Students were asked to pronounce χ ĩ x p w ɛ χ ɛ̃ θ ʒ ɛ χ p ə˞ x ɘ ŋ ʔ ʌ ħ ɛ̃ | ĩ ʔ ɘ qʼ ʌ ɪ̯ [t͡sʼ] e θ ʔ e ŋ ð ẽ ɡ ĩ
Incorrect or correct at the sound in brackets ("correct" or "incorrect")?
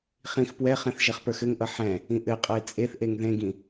correct